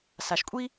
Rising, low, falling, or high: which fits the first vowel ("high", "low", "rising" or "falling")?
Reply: low